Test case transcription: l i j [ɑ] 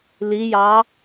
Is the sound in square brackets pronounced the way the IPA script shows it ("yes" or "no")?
yes